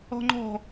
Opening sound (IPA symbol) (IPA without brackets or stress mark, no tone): ɔ̤